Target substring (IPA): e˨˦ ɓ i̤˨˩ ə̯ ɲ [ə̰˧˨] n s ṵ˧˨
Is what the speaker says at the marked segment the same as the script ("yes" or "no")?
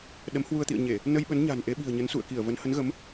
no